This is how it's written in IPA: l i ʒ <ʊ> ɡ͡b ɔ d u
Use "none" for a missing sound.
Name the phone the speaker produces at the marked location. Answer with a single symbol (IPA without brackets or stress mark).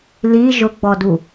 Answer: ʊ